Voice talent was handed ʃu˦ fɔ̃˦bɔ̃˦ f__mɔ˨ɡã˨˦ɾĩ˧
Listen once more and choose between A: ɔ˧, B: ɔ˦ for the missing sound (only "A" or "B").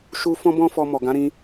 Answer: A